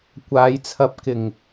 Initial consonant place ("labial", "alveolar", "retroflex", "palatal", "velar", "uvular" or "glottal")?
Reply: velar